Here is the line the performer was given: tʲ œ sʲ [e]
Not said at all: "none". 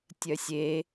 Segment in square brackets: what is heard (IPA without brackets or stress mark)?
e